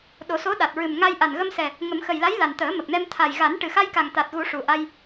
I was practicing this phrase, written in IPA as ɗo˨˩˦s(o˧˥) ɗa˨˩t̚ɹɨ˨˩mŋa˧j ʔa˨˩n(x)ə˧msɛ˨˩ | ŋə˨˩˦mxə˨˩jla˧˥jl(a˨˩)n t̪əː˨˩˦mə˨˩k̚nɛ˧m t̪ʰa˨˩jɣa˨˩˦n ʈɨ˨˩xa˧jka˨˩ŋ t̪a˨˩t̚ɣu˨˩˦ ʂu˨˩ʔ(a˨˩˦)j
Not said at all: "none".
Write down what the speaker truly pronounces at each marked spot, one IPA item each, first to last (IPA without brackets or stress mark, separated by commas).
o˧˥, ɣ, a˨˩, a˧